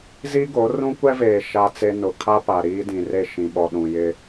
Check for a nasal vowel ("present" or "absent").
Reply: present